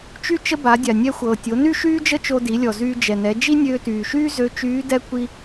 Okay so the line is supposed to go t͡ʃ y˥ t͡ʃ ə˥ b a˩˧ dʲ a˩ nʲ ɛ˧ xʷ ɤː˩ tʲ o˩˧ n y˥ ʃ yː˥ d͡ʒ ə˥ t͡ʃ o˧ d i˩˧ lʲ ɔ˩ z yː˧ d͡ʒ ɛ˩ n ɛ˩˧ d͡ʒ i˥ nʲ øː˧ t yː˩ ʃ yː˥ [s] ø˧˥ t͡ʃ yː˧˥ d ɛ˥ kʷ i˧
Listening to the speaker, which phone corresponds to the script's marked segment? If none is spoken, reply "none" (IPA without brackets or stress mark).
z